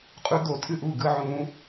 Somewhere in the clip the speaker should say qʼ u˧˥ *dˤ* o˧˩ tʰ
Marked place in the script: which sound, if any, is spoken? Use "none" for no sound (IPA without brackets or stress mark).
d̪